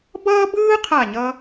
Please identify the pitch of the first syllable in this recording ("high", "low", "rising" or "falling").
high